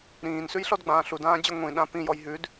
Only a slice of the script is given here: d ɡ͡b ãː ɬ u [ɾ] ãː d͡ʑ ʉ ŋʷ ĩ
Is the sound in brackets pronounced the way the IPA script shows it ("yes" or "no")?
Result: no